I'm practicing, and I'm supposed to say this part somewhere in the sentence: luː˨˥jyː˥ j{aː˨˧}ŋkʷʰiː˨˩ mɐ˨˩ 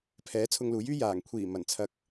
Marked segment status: incorrect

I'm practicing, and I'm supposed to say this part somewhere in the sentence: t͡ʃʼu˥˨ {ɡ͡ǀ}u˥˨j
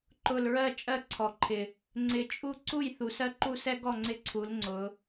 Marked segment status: incorrect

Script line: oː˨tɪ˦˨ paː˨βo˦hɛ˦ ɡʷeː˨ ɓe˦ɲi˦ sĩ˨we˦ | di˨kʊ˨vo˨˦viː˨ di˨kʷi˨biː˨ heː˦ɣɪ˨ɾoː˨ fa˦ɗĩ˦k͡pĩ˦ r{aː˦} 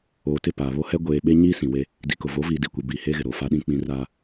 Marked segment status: correct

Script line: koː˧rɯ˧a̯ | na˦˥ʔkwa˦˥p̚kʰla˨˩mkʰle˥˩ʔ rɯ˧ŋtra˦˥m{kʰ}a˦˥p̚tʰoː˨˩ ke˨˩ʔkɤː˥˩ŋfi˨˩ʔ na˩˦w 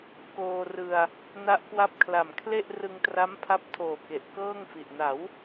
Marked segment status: incorrect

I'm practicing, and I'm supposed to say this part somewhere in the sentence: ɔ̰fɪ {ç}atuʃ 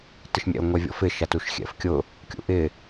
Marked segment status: incorrect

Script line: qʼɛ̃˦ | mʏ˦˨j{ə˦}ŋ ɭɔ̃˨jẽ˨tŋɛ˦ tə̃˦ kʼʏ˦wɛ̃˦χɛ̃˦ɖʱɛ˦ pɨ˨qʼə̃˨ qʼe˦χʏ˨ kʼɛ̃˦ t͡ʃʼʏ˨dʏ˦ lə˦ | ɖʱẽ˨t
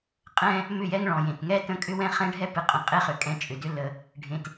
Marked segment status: incorrect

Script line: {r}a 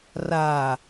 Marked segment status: correct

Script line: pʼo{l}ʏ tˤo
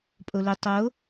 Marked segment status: correct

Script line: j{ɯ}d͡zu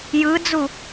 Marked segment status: correct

